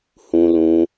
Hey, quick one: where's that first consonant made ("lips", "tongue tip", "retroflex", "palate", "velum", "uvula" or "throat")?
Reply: throat